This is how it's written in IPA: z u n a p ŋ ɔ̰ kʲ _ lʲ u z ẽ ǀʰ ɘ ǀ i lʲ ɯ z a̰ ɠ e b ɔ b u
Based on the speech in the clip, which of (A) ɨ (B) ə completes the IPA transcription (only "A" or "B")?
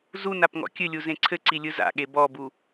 A